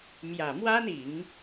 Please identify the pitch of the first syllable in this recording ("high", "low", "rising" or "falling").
low